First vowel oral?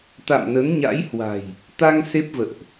yes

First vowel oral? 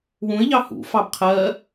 no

